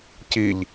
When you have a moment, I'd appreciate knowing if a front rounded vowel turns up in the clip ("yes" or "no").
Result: no